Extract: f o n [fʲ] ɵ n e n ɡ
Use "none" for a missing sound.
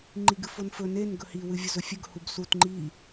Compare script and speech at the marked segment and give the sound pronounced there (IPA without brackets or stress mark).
f